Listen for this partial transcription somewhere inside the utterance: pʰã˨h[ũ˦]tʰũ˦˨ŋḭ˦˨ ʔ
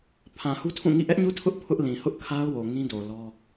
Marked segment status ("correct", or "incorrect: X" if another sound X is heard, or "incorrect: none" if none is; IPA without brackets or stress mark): incorrect: u˦